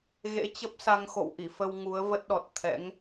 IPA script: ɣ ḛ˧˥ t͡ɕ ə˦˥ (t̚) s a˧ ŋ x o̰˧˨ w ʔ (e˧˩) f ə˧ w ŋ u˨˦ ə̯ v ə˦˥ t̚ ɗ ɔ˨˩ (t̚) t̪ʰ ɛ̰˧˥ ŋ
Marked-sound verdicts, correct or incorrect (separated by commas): incorrect, incorrect, correct